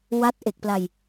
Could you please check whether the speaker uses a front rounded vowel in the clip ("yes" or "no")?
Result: no